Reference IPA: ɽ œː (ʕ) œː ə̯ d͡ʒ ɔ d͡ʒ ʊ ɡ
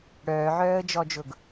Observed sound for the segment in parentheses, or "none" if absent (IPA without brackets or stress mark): ʕ